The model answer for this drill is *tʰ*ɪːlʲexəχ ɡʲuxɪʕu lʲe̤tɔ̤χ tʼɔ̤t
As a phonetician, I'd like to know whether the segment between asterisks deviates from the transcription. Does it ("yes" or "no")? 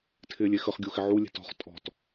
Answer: no